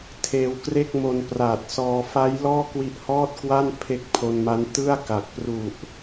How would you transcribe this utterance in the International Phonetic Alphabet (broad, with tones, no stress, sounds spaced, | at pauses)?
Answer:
tʰ eː˧ w k r e˥˩ k̚ m o˧ n p r aː˨˩ t̚ s ɔː˧ f a˦˥ j l ɔː˥˩ k w i˦˥ ʔ h ɔː˥˩ t̚ k w a˥˩ n pʰ e˦˥ k̚ pʰ o˧ n m a˦˥ n t ɯ˥˩ a̯ k a˨˩ k̚ p r u˨˩ ʔ